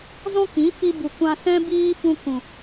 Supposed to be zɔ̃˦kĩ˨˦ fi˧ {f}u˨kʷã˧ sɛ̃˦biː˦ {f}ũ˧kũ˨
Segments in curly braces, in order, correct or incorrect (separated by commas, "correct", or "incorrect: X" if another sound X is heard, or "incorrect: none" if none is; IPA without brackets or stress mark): incorrect: b, correct